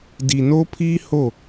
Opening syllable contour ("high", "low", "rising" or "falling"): low